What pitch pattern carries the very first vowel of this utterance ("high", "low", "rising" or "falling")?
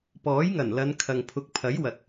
rising